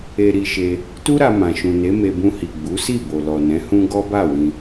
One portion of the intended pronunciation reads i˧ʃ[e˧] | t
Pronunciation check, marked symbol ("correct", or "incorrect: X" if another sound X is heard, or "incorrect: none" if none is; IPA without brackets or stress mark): correct